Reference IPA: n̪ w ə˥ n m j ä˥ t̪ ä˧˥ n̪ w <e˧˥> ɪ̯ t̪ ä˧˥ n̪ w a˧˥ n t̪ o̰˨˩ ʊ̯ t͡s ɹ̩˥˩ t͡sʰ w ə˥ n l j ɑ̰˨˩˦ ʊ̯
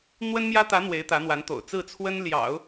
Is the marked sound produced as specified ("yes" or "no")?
yes